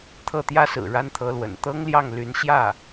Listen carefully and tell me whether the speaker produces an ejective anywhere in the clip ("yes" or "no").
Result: no